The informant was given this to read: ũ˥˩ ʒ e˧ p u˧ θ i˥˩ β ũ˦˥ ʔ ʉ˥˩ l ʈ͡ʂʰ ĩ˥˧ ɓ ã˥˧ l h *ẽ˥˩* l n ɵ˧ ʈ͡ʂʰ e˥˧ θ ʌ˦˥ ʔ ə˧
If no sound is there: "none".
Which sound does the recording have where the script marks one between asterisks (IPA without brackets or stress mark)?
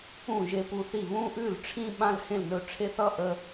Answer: ẽ˥˩